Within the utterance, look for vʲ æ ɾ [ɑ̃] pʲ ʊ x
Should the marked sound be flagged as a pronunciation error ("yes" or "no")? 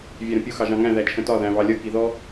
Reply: yes